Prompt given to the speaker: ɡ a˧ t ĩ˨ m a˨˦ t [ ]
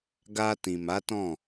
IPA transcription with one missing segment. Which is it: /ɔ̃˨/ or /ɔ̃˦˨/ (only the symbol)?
ɔ̃˦˨